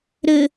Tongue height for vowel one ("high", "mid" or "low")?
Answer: mid